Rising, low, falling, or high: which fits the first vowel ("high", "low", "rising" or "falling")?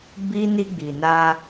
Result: high